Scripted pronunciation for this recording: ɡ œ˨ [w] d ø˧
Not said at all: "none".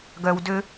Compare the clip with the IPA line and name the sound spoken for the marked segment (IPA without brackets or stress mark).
w